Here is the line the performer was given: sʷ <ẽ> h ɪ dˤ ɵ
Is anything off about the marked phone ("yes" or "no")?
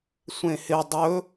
no